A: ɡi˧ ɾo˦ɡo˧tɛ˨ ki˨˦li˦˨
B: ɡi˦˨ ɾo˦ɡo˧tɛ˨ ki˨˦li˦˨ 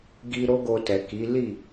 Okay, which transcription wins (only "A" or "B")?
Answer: A